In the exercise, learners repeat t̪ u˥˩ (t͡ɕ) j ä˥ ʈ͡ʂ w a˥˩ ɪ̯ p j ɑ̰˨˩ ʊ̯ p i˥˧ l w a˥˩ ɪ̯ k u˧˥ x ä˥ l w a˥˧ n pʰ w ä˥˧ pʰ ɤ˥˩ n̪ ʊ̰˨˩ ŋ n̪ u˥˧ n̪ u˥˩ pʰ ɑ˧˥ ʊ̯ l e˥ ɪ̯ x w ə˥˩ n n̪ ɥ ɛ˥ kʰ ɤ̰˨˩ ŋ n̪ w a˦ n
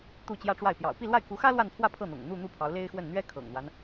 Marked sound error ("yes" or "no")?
no